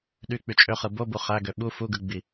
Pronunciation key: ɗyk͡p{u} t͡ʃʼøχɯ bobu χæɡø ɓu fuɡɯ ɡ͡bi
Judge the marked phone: incorrect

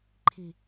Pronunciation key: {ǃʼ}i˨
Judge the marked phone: incorrect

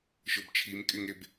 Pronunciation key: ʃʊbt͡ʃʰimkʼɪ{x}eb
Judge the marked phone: incorrect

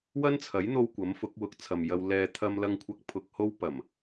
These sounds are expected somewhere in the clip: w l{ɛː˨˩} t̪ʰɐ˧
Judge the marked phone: incorrect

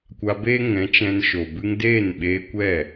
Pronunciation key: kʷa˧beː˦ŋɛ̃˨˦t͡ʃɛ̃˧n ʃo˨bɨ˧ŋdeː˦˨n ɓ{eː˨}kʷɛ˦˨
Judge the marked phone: incorrect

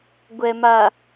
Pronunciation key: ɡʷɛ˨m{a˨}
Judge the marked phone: correct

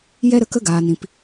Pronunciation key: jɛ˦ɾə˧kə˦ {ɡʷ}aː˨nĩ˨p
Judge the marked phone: incorrect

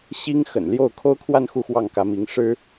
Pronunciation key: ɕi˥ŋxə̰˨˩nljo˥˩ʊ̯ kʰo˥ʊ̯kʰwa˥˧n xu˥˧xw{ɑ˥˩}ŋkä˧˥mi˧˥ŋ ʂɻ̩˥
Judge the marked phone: correct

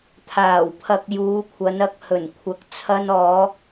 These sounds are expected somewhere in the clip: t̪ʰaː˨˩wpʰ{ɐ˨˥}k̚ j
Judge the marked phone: incorrect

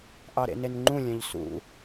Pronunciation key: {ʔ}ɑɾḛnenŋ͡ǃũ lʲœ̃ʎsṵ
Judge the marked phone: correct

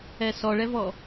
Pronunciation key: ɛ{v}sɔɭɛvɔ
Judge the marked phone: incorrect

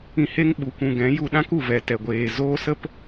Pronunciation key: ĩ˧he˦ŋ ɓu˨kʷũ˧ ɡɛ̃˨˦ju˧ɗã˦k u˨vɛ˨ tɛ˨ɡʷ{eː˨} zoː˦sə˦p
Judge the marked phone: correct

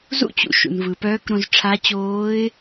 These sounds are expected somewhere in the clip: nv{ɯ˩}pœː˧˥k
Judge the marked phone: correct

